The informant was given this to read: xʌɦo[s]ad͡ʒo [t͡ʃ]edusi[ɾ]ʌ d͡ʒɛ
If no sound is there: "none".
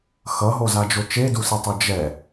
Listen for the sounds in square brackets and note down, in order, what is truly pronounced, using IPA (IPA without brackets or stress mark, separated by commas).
z, t͡ʃ, tˤ